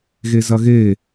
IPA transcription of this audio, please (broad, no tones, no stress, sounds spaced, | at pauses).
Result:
ɣ e z ɐ ɣ e